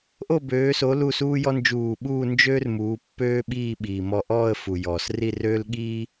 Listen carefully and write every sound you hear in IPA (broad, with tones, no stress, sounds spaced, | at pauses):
ʔ o˥˧ b øː˨˦ s o˨˦ l u˥˧ s uː˥ j ɔ˥ n d͡ʒ uː˧˩ ɓ uː˥˧ n d͡ʒ øː˥ r m uː˨˦ pː øː˥ ɓ iː˥˧ ɓ iː˩ m ɔ˧˩ ʔ ɔː˥˧ ə̯ f u˩ j ɔː˩ s r i˥˧ r øː˥ l ɠ iː˥